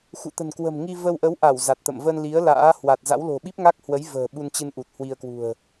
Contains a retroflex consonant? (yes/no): no